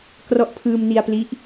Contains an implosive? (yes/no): no